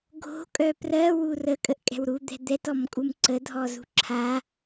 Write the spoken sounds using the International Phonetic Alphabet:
ɡʱ o̤ kʼ œ p r ɜ w u r ə kʼ ə ʔ kʼ ɛ̤ w ɾ u d̪ ɛ̤ d̪ ɛ t ɔ m kʼ u m ǀ ə dʱ ɔ z ṳ ǁʰ a

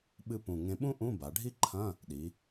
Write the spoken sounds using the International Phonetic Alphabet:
ɓ ɨ˧ p ũ˨˩ ŋ ẽ˧ ɓ ũ˥ ʔ ũ˧˥˧ b a˩˧ ɖʱ i˥ ǃʰ ɐ̃˧˥˧ | ɗ i˩˧

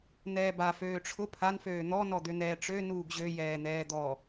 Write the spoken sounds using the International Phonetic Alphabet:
n̪ ɛː b a f øː ʈ͡ʂʰ ʊ pʰ a n f øː n̪ ɔ n ɔ d̪ ø n̪ ɛː ʈ͡ʂ ø n uː ɡ ʑ ø j ɛː n̪ ɛː d̪ ɔ

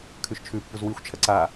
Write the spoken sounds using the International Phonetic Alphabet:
kʰ ʉ ʃ t͡ʃʰ ʉ pː u z w i xʷ t͡ʃʰ ɐ ǀ a

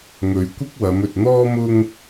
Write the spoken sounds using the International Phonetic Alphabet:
ŋ ɵ˨ ɥ kʷ ɪ˥ k̚ w ɐ˨˧ m ɵ˨ t̚ n̪ ɔː˥ m ʊ˥ ŋ

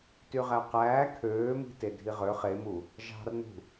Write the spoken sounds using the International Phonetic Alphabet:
t y ʁ æ q æː kʰ øː m i̤ t e dʱ i ʁ ø χ e m u | ʒ ɑ̤ r n ṳ

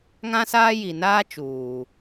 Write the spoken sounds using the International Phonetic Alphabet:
ŋ ã˦ s aː˦ j i˨ n aː˦ t͡ʃ uː˨

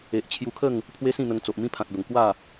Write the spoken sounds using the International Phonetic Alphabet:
e˨ ʔ t͡ɕʰ j u˧ kʰ ə˥˧ ŋ | pʰ w e˦ s ĩ˥˧ n̪ ə˧ ŋ t͡s o˨ ʔ m ĩ˦ pʰ ã˨ t̚ b ə˨˩ ŋ k w a˥˧

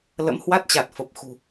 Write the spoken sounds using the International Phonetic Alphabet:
l ə̰˧˥ m h w a˦˥ t̚ t͡ɕ a˨˩ t̚ f ə˨˩ p̚ x ṳ˨˩

